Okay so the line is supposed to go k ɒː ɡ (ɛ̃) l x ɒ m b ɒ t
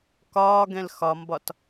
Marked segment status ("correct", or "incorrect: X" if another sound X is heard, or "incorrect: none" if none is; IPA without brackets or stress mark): correct